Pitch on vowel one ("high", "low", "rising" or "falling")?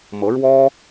rising